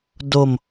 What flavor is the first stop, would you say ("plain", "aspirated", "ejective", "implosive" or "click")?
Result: plain